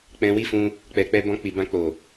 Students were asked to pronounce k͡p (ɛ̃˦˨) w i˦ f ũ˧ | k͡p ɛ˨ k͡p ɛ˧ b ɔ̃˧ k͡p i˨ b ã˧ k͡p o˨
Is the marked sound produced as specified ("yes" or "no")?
no